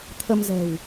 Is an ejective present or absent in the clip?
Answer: absent